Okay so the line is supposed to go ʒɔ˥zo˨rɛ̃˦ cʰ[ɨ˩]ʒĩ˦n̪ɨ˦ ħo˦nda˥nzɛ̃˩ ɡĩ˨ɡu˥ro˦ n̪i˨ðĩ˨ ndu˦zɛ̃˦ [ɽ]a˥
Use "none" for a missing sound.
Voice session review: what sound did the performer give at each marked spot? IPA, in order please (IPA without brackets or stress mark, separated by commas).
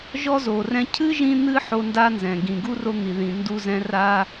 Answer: ɨ˥, r